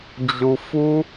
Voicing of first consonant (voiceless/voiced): voiced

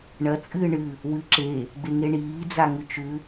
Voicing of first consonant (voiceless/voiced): voiced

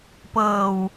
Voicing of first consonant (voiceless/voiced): voiceless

